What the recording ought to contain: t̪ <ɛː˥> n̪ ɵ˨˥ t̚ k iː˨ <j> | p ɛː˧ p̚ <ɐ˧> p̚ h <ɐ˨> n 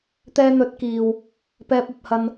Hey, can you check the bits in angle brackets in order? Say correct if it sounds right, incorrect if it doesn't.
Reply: incorrect: ɛː˧, incorrect: w, correct, incorrect: ɐ˧

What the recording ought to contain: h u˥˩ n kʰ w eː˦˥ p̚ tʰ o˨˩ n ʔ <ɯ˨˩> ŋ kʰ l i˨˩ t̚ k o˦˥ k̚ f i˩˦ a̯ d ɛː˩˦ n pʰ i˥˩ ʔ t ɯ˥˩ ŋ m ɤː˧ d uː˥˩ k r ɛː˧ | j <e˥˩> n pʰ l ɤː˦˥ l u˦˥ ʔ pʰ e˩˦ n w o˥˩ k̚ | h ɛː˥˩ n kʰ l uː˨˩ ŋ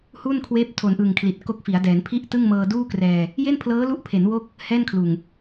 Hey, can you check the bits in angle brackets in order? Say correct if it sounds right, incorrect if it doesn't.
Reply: correct, correct

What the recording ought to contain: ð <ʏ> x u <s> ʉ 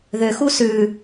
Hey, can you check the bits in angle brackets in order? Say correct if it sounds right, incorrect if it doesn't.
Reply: correct, correct

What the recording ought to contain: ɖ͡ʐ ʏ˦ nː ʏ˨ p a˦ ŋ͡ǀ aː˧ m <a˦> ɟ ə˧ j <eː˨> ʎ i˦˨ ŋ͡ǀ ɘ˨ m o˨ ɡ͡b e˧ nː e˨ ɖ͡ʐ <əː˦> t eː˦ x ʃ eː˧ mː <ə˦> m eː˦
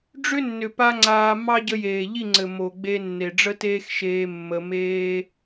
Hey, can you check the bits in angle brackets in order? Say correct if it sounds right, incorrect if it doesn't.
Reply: incorrect: ɑ˦, correct, incorrect: ə˦, incorrect: ə˧

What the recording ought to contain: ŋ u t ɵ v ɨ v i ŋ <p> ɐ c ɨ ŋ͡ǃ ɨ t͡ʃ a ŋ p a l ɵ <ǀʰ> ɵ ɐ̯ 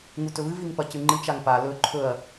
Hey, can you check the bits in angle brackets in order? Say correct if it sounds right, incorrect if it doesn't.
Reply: correct, incorrect: ǃʰ

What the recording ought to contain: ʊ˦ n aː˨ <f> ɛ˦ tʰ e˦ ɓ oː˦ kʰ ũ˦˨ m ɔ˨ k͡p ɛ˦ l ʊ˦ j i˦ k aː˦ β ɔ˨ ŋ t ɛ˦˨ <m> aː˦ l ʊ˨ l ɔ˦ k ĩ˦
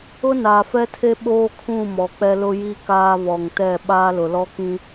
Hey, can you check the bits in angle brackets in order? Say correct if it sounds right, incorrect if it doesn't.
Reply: correct, incorrect: ɓ

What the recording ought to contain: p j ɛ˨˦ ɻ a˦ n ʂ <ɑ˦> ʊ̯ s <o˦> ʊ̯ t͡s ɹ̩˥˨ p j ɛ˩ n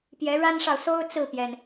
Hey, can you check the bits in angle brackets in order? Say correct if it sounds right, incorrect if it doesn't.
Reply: incorrect: ɑ˨, correct

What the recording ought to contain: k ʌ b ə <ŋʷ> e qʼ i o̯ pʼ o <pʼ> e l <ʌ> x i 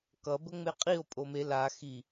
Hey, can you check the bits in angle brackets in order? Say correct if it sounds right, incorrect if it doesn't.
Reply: incorrect: ŋ͡m, incorrect: m, incorrect: a

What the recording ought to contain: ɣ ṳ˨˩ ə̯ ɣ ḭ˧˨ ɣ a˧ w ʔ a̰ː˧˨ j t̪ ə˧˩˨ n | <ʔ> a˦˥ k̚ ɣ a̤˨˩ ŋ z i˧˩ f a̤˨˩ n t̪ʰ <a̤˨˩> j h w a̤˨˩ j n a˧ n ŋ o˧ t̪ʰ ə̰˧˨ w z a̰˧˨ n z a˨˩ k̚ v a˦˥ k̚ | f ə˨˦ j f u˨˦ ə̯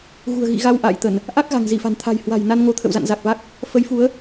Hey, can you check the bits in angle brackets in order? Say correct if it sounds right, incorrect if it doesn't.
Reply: correct, correct

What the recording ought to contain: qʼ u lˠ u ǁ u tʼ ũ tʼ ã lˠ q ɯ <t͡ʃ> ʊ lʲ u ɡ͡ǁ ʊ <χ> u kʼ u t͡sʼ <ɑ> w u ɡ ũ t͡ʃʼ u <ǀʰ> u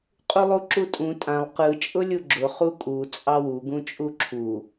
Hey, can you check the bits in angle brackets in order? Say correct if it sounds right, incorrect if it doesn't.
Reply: incorrect: t͡ʃʼ, correct, correct, incorrect: ǁʰ

